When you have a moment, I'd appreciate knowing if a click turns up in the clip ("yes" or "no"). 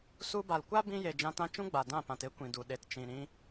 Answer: no